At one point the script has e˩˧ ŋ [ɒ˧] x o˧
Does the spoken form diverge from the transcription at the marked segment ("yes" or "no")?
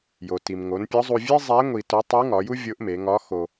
yes